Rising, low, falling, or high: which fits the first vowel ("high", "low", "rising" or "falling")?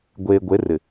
low